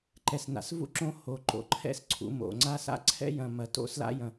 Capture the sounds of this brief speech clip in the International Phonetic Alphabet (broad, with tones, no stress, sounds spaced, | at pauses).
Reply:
ǃ ɛ˩ s n a̰˩ s v ṵ˥ ǁ õ˦ h o˩ ǃ o̰˩ ǃʰ ɛ̰˦ s ǀʰ ṵ˨ m o̰˩ ŋ͡ǀ a˦ s a̰˥ ǀʰ ɛ̰˥ j ɐ̃˨ m ɐ˨ t o̰˦ s l a̰˥ j ɐ̃˨